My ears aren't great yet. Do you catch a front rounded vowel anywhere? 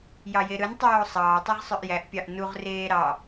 yes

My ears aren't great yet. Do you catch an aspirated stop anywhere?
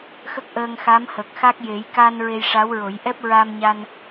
no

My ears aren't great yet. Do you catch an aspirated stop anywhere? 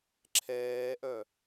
yes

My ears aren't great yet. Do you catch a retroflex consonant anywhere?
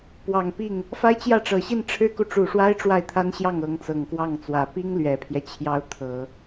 yes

